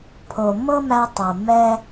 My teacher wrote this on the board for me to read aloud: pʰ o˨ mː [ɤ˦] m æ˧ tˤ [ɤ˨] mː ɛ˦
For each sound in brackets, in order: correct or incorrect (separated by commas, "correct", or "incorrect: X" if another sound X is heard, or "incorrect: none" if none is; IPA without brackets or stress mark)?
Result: correct, correct